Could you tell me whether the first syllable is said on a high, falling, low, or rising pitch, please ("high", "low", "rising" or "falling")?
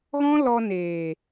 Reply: high